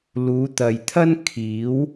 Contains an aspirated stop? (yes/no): yes